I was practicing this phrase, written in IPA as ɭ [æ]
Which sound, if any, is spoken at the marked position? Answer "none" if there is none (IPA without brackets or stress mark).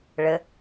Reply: ə